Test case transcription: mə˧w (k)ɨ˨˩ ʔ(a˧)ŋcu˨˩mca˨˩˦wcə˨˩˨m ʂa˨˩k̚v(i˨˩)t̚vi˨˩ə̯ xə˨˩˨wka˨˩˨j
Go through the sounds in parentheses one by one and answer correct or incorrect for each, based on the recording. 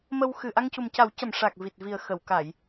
incorrect: x, correct, correct

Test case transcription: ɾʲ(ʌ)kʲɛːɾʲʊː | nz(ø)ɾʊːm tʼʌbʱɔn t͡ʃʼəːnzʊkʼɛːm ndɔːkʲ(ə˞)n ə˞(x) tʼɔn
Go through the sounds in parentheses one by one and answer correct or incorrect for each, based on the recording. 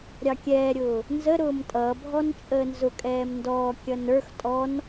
incorrect: ɑ, incorrect: ə, incorrect: ʌ, correct

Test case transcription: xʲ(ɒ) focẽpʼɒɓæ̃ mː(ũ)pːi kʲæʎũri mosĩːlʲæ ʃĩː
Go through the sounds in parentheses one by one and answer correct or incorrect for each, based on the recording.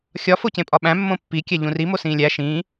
correct, incorrect: õ

